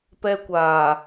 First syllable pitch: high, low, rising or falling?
high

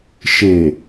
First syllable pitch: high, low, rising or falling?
low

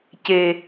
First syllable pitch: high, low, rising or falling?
low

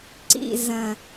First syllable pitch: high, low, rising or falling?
falling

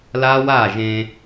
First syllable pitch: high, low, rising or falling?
high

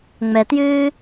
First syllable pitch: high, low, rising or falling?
low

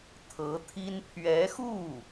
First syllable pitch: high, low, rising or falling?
rising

